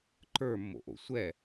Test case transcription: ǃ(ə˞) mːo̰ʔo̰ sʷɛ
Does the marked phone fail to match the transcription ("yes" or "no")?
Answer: no